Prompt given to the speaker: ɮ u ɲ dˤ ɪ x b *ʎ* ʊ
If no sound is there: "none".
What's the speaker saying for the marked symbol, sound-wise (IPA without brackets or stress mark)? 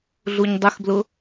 l